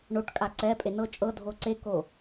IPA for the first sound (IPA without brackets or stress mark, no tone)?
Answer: ɳ